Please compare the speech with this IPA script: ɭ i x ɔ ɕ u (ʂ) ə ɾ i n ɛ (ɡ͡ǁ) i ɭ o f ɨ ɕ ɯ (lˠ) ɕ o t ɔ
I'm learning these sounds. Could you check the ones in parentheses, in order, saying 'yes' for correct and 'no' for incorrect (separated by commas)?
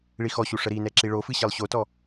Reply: yes, no, yes